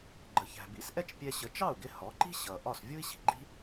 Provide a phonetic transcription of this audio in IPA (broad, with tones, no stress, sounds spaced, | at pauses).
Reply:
ɡ͡ǃ ə˩ ç æ̤˩ b ḭ˩˥ s ʔ ɛ˥ t͡ʃ pʲ ɛ˧ ɕ ə˩˥ t͡ʃ ɑ˥˩ u̯ ɡ ɪ˧ h ɔ˩˥ ǃ i̤˥ ɕ ʌ˩ ʔ ɒ˥˩ s vʲ u˥ i̯ ɕ i̤˩ ɡ͡ǃ i̤˥